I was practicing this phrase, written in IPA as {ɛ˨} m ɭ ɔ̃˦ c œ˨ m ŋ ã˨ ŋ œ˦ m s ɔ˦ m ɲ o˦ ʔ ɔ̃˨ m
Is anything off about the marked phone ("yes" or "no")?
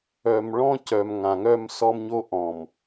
yes